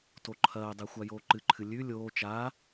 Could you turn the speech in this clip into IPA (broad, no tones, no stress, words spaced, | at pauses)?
toǃʰɐːdˤe xʷajoːǃɨǃʰɨ lʲʉ lʲoː t͡ʃa